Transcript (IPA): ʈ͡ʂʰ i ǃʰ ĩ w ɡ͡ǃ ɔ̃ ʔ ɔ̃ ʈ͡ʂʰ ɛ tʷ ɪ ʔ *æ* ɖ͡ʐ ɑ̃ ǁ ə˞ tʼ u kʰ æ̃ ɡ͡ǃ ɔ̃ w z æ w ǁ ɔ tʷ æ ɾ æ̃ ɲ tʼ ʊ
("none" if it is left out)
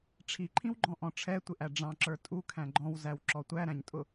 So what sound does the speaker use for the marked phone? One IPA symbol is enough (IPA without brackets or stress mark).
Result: æ